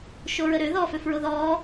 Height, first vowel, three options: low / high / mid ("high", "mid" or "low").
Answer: mid